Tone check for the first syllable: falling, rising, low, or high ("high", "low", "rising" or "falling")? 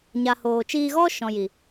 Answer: low